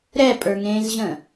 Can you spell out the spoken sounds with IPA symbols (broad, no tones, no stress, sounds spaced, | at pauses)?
ɾ ɛ pʼ ə˞ ŋ ẽː z ʑ ə̃ː